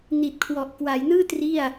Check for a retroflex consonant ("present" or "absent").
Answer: absent